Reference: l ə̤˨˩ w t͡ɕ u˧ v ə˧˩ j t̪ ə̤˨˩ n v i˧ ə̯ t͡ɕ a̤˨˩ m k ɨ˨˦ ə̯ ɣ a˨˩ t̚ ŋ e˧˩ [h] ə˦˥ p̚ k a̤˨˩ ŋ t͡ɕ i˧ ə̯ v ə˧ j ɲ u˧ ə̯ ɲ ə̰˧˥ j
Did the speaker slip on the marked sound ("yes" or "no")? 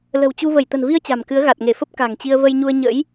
yes